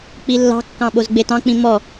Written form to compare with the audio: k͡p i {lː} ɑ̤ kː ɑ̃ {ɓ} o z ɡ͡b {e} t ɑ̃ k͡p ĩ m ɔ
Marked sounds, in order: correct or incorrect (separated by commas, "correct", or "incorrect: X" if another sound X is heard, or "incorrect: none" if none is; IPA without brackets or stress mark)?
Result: correct, correct, correct